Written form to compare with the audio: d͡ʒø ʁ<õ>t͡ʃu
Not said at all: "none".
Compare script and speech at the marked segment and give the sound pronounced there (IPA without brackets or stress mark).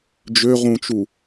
ũ